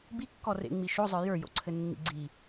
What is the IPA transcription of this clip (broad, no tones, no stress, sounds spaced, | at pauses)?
b i kː ɔ r ḛ ŋ͡m i ʃ o zˤ ə˞ j ə˞ j o̰ ǀʰ ɘ nː ḭ ɡ͡ǀ i